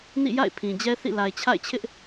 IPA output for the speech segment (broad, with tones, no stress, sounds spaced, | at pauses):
n ḭ˦˨ j a̰˦˨ ɪ̯ pʰ ĩ˨ d͡ʑ ɛ˦ θ ḭ˦˨ l a˨ ɪ̯ t͡ɕʰ a̰˦˨ ɪ̯ t͡ɕʰ ɪ˦ ʔ